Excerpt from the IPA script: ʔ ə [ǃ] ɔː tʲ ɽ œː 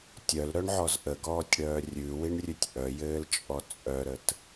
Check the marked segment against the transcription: incorrect: ɡ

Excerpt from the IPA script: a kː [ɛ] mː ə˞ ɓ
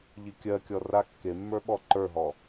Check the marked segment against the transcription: incorrect: e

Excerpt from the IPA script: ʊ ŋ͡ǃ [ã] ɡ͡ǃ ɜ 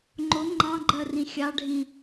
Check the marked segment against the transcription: incorrect: ɑ̃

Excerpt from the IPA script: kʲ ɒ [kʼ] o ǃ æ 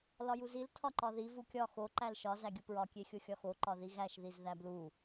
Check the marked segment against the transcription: incorrect: x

